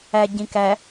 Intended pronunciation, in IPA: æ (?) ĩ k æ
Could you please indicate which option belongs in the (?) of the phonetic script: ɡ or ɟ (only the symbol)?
ɟ